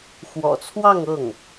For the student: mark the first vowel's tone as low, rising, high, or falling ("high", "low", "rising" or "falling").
low